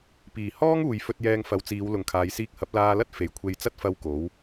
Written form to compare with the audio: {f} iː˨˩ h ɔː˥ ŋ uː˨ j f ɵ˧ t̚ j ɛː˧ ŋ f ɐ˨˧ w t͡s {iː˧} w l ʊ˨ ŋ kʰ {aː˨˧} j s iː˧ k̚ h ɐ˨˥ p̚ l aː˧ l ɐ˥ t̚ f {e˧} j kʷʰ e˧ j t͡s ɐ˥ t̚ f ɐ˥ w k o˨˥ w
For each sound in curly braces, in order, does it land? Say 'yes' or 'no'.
no, no, yes, no

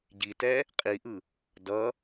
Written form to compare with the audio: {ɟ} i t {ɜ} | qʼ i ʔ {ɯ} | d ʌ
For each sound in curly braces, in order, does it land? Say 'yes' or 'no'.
yes, no, yes

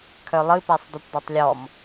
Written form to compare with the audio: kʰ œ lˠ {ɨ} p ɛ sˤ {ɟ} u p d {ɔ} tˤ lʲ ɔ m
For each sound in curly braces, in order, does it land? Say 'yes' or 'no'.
yes, no, yes

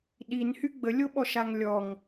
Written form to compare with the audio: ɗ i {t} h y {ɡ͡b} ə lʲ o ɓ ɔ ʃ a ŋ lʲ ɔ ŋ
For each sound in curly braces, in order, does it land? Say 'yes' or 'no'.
no, yes

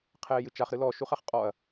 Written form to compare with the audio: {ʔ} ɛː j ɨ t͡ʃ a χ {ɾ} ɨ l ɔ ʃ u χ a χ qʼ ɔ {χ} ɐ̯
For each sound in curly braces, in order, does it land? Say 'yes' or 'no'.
no, yes, no

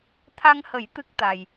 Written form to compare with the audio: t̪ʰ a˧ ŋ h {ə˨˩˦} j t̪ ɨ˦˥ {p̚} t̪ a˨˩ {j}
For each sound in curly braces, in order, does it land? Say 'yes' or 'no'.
yes, no, yes

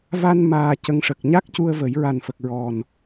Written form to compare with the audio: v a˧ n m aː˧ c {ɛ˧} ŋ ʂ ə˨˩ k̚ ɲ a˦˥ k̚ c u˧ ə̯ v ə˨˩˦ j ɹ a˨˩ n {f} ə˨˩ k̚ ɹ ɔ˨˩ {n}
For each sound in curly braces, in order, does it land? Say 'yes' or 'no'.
no, yes, yes

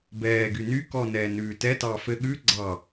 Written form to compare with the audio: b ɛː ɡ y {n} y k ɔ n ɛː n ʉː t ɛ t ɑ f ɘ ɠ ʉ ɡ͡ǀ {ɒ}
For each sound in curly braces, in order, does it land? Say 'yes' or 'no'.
yes, no

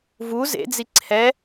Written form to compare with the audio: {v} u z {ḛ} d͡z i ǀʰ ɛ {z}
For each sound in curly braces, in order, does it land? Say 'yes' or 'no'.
yes, yes, no

